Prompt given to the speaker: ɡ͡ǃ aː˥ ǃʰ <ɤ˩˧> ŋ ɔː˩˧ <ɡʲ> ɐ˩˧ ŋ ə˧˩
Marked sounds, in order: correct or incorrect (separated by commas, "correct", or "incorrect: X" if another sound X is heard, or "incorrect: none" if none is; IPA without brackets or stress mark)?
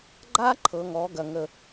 correct, incorrect: ɡ